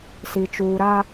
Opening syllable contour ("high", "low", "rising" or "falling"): low